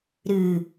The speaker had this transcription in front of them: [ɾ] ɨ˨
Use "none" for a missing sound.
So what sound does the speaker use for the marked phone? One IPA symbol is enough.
ɾ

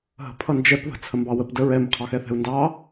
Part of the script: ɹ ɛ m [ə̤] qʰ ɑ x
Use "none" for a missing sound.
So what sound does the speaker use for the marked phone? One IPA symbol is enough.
ə̤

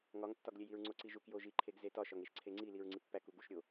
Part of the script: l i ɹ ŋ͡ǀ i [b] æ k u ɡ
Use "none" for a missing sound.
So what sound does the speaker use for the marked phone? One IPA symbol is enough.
pː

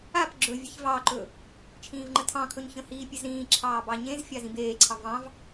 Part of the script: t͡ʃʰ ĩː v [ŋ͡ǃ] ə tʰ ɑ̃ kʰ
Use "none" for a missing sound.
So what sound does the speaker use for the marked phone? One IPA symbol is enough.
ŋ͡ǃ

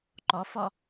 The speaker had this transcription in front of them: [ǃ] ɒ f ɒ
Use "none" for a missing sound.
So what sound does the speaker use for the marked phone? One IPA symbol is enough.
ǃ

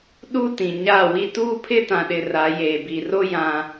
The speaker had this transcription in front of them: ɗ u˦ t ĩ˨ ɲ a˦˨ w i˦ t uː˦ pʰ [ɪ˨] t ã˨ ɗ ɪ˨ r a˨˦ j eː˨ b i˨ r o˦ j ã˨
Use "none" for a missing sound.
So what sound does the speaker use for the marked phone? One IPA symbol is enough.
ɪ˦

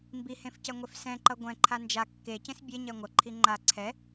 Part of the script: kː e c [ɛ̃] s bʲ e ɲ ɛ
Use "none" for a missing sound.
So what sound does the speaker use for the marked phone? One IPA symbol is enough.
ẽ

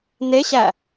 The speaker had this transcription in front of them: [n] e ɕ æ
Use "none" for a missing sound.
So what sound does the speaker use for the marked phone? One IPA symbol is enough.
n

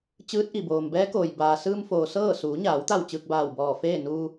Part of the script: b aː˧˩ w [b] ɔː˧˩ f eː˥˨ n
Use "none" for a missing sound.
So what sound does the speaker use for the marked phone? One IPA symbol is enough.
b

